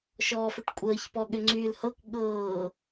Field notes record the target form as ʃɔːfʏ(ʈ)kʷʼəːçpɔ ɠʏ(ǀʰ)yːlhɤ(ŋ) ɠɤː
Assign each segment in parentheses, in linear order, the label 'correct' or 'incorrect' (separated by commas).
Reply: correct, incorrect, incorrect